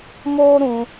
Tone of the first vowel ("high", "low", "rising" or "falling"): high